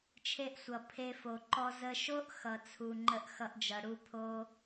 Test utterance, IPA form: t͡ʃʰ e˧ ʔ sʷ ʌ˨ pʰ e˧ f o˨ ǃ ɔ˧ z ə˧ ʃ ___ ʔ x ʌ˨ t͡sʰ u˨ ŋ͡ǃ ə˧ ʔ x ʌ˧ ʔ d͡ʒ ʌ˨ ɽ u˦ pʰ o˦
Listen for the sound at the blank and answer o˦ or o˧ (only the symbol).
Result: o˦